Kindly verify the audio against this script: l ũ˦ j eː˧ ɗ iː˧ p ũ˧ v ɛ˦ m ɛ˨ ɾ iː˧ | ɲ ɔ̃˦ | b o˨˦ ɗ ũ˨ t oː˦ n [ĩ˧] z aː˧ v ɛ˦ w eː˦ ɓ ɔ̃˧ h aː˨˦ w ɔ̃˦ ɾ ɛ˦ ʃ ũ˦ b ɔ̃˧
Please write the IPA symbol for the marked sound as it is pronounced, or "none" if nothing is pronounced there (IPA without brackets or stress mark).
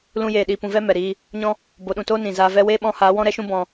ĩ˨